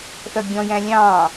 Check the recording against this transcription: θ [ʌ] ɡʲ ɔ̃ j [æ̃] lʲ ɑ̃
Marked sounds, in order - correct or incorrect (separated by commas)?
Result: correct, correct